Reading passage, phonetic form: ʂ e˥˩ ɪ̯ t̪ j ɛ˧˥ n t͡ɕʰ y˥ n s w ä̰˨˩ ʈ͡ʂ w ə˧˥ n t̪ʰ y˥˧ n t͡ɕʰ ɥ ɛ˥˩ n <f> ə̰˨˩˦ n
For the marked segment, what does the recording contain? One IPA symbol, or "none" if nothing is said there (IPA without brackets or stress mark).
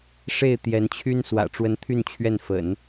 f